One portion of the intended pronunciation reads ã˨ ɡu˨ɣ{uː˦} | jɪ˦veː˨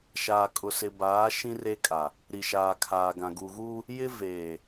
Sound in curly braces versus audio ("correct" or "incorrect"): correct